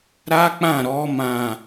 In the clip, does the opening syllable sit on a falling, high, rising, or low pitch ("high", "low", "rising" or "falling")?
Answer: high